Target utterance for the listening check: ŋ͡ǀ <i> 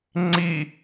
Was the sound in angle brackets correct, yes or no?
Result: yes